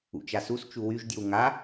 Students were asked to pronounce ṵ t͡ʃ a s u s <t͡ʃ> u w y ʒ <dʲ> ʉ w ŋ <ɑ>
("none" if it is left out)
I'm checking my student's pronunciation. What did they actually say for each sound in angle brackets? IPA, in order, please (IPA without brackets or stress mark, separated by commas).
t͡ʃ, dʲ, a